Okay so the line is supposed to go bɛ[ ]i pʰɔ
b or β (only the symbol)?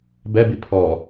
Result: b